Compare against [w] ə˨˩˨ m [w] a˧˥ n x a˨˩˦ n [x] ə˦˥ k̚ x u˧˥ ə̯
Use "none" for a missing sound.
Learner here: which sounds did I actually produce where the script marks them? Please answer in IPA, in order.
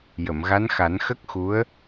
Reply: j, ɣ, x

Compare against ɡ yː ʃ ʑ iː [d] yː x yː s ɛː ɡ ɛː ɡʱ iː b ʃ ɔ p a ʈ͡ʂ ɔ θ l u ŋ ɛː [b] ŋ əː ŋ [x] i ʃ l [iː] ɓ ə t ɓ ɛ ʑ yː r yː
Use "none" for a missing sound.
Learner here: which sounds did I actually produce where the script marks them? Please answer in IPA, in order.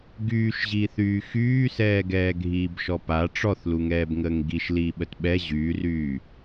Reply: θ, b, ɡ, iː

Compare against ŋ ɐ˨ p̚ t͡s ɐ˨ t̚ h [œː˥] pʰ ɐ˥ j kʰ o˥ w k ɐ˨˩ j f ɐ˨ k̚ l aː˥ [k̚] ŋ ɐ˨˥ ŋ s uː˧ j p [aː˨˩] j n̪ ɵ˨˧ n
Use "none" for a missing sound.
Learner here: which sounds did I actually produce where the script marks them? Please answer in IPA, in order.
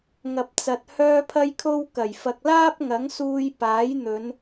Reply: œː˥, p̚, aː˨˥

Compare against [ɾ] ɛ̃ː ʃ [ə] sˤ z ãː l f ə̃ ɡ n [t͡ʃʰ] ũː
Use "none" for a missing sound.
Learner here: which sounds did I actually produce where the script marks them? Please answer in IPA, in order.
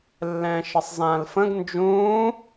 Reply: lː, ə, d͡ʒ

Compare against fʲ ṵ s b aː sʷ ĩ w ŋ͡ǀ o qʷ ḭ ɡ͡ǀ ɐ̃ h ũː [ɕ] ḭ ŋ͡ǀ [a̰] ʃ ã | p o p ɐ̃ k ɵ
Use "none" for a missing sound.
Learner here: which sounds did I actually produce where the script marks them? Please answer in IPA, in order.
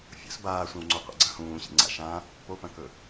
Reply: ɕ, a̰

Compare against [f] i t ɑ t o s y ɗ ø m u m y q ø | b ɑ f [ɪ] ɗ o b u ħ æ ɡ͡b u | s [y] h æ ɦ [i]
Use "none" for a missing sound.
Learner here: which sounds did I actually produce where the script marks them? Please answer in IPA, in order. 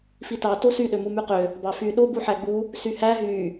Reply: f, y, y, y

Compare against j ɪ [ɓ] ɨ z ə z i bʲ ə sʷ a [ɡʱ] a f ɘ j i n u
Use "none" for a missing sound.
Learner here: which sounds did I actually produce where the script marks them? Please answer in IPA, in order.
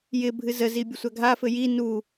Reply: bʱ, ɡʱ

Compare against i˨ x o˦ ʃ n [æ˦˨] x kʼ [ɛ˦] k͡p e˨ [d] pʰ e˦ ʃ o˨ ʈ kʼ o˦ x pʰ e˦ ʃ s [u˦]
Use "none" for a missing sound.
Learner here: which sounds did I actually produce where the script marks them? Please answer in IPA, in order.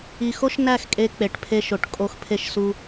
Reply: æ˦˨, e˦, ʈ, u˦

